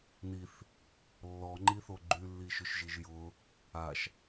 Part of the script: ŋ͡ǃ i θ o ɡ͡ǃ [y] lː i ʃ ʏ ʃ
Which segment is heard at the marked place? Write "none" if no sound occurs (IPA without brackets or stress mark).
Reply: y